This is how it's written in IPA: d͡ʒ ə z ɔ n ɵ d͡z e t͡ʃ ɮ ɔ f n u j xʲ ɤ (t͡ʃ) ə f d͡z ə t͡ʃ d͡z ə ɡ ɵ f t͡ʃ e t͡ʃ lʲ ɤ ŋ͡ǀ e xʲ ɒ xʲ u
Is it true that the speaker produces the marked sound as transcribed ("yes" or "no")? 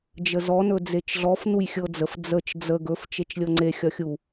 no